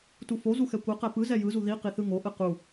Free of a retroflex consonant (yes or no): yes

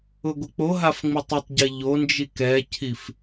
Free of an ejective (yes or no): yes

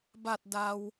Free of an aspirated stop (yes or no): yes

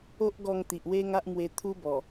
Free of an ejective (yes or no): yes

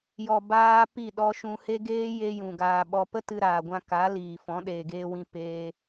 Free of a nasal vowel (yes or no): no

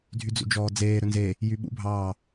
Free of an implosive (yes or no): no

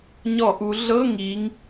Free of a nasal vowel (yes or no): yes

